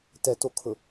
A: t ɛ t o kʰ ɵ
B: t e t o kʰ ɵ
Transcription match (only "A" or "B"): A